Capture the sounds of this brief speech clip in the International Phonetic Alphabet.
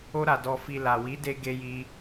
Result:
o˧ ɾ a˨ d ɔ˨ f i˨ l a˨ w i˨˦ d e˧ ɡ e˧ j i˧

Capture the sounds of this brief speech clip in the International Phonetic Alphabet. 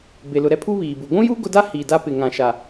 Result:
b e˨ l ʊ˨ ɾ ɛ˦ pʰ u˦ β iː˨ b u˨ ɡʷ ũ˦ j u˦ ɡ ʊ˦ d a˦ h iː˨ d a˦ p ɪ˨ ŋ ã˨ ʃ a˨

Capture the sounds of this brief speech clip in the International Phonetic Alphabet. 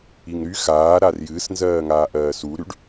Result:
i ŋ ɾ y x aː ɾ a r j ɨː s n z ɜː ŋ aː ʔ ɜː s u ɾ y ɖ

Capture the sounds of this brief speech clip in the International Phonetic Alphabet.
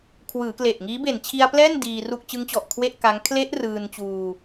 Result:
kʰ w ɯː˩˦ k l e˨˩ ʔ ŋ iː˦˥ b e˨˩ n t͡ɕʰ i˧ a̯ p l ɛː˥˩ n d iː˧ r u˥˩ k̚ t͡ɕ ɯ˦˥ ŋ t͡ɕ ɔ˨˩ ʔ kʰ w e˥˩ ʔ k a˦˥ ŋ kʰ l e˦˥ ʔ r ɯː˧ n t͡ɕ uː˧

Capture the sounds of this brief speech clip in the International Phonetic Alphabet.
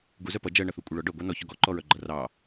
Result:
ɡ u z œ p ʌ d͡ʒ ɜ ɳ ʌ θ u kʷʼ e ɭ ɔ ɖ œ ɡʷ ɑ n ɔ ç ɔ ɡ ɔ ǃ ɔ ɹ œ ɡ͡ǃ ʌ r ɑ

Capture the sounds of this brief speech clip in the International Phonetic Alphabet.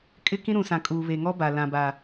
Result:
kʼ ɪ˦ k ĩ˦ ɾ ũ˨ s ã˨ kʼ uː˨ β e˨ ŋ ɔ˦ b a˨ l ã˨ b a˨

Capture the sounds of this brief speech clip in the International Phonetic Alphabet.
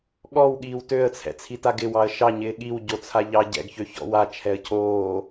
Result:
ɠ ɔ w ɠ iː w t ø ə̯ t͡sʰ ɛ̰ t͡sʰ i t a ɡ ɪ w ɑ ə̯ ʃ ɑ ɲ ɪː ɠ i w ɟ o t͡sʰ a ʎ ɑ ɟ ɛ̰ ɡ ç ø ç ɔ̰ w a t͡ʃʰ ɛ ə̯ cʰ oː

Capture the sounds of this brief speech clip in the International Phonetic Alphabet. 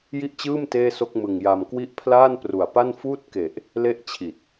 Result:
j i˥˩ ʔ t͡ɕ ɯː˥˩ m t eː˥˩ s o˥˩ k̚ m ɯ˨˩ ŋ j a˧ m k w i˥˩ ʔ pʰ l aː˥˩ n p r u˨˩ a̯ p a˥˩ n f uː˥˩ t̚ k e˨˩ ʔ | l e˥˩ ʔ t͡ɕʰ i˨˩ t̚

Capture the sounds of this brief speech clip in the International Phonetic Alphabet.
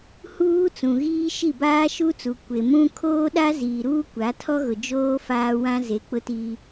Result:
h uː˦ t͡s ũ˨ ɣ iː˦ ʃ i˦˨ b aː˦ ʃ u˦ t͡s u˨ kʷ e˨ m ũ˦ kʰ oː˦ ɗ a˦ z iː˨ ɾ uː˦ kʷ a˨˦ tʰ ɔ˦ ɣ ʊ˨ d͡ʒ oː˦ f aː˦ w ã˦ z e˨ k͡p ʊ˦ t i˦

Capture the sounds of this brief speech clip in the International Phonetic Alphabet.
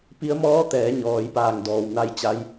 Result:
p i˧˥ ə̯ m ɔː˧˥ t̪ ɛː˩˧ ɲ ɔː˩ j p aː˧˩ ŋ d ɔː˩ w n a˧ j t͡ɕ a˧˥ j

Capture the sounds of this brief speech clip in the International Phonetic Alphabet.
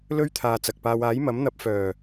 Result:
l ɵ˥ ɥ t̪ʰ aː˨ t͡s ɐ˨ k̚ p aː˧ w aː˨˥ j m ɐ˨˥ m n̪ ɐ˨˥ p̚ f œː˨˩

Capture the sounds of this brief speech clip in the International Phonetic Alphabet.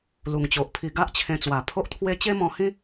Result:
l u˨˩ ŋ t͡ɕ o˨ ʔ pʰ i˧ ɡ a˦ ʔ t͡ɕʰ ẽ˧ t͡s w a˨˩ pʰ o˦ ʔ t̪ʰ w e˦ t͡ɕ e˦ m ɔ̃˧ h ĩ˦

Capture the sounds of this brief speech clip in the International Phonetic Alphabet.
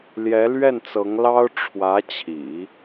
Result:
l j ɛ˧˥ l ɥ ɛ˥˩ n t͡s ɤ˧˥ ŋ l ɑ˥ ʊ̯ ʈ͡ʂʰ w ä˧˥ t͡ɕʰ ḭ˨˩˦

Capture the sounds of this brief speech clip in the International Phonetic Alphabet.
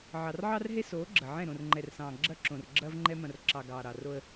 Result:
ʕ ɑ˨ r ʕ ɑ˦ r ɦ e˦ s oː˨˦ ɡ͡ǁ ɐ˨ ʕ ɛ̃˦˨ ɾ õ˨ r ŋ͡ǃ ɛ˨ r s ɑ̃ː˨ ɡ͡ǁ ɐ˦ ǁ õ˨ r ɡ͡ǁ ɐː˦ v ŋ͡ǃ ɛ˦ m ɐ̃˨ r ǁ ɑ˨ ɡ ɑː˨ ɾ ɑ˨ r o˦ ə̯

